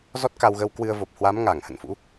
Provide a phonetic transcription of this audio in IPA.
zɔ˦˥t̚ka˧wɣə˧w kwɨ˧ə̯ vo˨˩p̚hwa˨˦mŋaː˧˩ŋ hə̰˧˨nfṵ˧˥

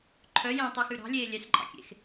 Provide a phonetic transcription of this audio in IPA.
ǃʰœ jɛ̃tˤyxʉ ɾɑ̤lʲeː lʲɛsǃʼɑ̰kʲḛx

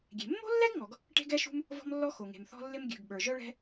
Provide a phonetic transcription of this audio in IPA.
ɡʲe̤˩mːo̤˥lːɛ˥ɡ ŋɔ˩ɡ | ʈe̤˥ɡɛ˥ʃṳ˥m | vɔ̤˥mlːɔ˥ xo˩ŋe̤˩m θɔ̤˥lːɪ˥m ɡʲʉ˩ɡ ɓə˞˩ʒœ˥ɭɛ̤˥

